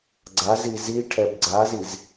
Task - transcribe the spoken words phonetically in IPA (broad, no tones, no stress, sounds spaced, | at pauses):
ɡ͡ǀ a z i z i ʈʰ ɛ b ɡ͡ǀ a z i z